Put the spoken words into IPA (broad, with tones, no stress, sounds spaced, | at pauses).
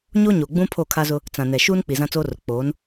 ɲ o˦ ɲ o˨ ɡ͡b ũ˦ pʰ o˦˨ kʰ a˦ z ʊ˦ | t͡s ã˨ n ɛ˨ ʃ uː˦ n k͡p i˨ z ã˦ t͡s oː˦ r ʊ˨ k͡p oː˨˦ n